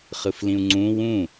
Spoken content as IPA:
χ ɯ f l ĩ u̯ ŋ͡ǀ ũ w ũ

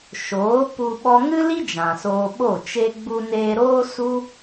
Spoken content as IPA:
ʃ oː˨˦ p u˧ ɓ ɔ˧ ŋ ɨ˦ l i˦ d͡ʒ ã˨ s oː˧ ɓ o˦˨ t͡ʃ e˧ ɡ͡b u˧ n eː˧ ɾ oː˦ s u˦

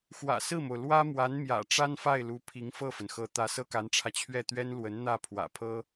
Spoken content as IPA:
x w ä̰˨˩ s ɹ̩˥˩ m o˩ ʊ̯ l w ä˥ m w a˧˥ n m j ä̰˨˩ ʈ͡ʂ a˥ n f a˥˩ ɪ̯ l u˧˥ pʰ i˧˥ ŋ f ɤ˥˩ f ə˩ n x ɤ˧˥ t̪ ä˧˥ s ɤ˥ k a˧˥ n ʈ͡ʂʰ ä˧ t͡ɕʰ ɥ ɛ˥˩ t̪ ɥ ɛ˥ n l w ə˧˥ n n̪ ä˥˩ pʰ w ä̰˨˩ pʰ ɤ˥

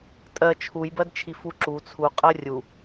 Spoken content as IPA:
tʼ ɜ t͡ʃʰ u j b ɜ d t͡ʃʰ i f u ǁ u t͡sʰ u qʼ ɜ rʲ u

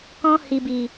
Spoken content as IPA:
k ɔ̃˧ h i˨ b i˨

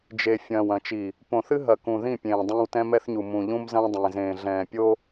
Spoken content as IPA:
d͡ʒ e˨ fʲ ɐ̃ː˨ w ɐ̃˨ t͡ʃ i˨ | p õ˨ θ ɨ˦ ɦ ɐ˨ k ũ˨ ð ĩ˦˨ pʲ ẽː˨ dˤ ẽː˦ w t ɛ̃˦ m ɛ˦ θ ɲ u˨ m ũ˨ ʎ ũ˦ m z ɐ̃ː˦ dˤ ẽː˨ z ẽː˨ ɮ ɛ̃ː˨ pʲ o˦

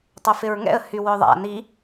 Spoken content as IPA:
tˤ œ f ɪ ɹ ŋ ɛ̰ ə̯ h y w œ ðˤ a̰ n i

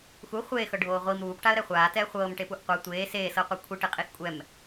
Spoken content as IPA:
x u χʷ eː x ɤ ɖʱ oː ʁʷ i m ɾ uː p ʈ a ə̯ ɾ ɛ χʷ aː t ɛː χʷ ɤː m ʈ e p u ʔ qʷ ɤ tʷ eː s eː s ɤ qʷ ɤ kʷʰ i ʈ e qʼ i x kʷʼ ɛ m

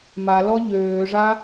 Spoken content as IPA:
m a l ɔ ʎ øː ʐ a

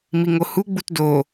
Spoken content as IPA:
m i ŋ o h u ɡ͡b u t d o

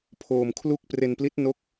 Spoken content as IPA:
pʰ oː˧ m kʰ l u˥˩ k̚ p r e˧ n p l i˦˥ t̚ n o˦˥ k̚

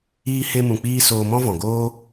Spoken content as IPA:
iː˧ h e˧ m ũ˨ k͡p iː˧ s oː˧ m ɔ̃˦ v ɔ̃˨ ɡ oː˦

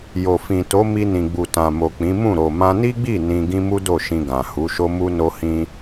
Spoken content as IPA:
j o˨ f ĩ˨ t o˨˦ m i˧ n ĩ˨ ɡ͡b u˨ t ã˨ m o˨ k͡p ĩ˨˦ m ũ˦˨ ɾ o˨ m ã˧ n i˦ ɡ͡b i˦˨ n ĩ˧ ɡ ĩ˦ m u˦ d o˦˨ ʃ ĩ˧ ɡ ã˨ h u˨˦ ʃ o˦ m u˦ n o˦ h ĩ˦

